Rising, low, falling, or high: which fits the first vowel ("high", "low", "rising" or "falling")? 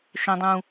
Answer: low